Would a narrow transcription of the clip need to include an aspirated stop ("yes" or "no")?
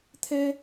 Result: yes